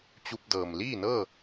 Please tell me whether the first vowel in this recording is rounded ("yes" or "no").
yes